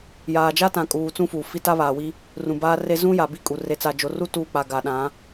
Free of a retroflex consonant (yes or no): yes